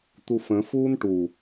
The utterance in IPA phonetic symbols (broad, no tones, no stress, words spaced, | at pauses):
t̪ufə̃ fuːnʈu